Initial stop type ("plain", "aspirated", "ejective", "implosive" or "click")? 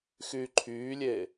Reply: click